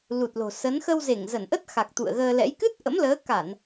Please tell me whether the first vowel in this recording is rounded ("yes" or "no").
yes